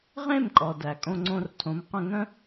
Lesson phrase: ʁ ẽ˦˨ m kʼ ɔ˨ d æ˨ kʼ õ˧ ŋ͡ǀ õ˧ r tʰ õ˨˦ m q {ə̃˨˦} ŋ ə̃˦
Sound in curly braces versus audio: incorrect: ə̃˧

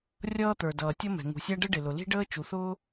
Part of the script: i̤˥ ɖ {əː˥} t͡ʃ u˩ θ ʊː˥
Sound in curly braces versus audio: correct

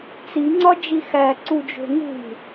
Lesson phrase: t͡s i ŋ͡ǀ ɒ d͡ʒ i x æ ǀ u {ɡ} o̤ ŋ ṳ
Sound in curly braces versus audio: incorrect: d͡ʒ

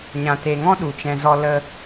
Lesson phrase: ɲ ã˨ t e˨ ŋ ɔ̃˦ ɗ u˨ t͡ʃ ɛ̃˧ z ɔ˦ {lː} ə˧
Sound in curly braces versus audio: incorrect: l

